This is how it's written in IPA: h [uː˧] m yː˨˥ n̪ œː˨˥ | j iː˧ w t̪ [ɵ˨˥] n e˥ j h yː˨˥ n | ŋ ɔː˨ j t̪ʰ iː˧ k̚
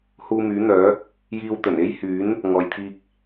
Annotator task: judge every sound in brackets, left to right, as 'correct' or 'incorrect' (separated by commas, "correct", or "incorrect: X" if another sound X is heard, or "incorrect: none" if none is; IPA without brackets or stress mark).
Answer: correct, incorrect: ɵ˨˩